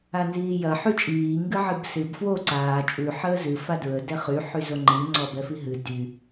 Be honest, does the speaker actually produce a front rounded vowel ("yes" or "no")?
yes